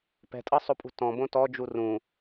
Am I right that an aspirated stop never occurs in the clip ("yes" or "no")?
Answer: yes